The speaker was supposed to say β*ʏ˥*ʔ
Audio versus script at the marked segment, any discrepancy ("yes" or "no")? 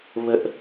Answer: yes